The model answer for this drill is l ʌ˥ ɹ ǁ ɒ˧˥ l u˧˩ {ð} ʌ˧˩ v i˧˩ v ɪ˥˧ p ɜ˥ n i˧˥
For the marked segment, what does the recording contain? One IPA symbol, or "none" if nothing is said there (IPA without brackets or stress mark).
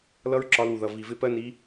ð